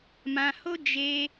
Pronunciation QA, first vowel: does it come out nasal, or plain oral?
nasal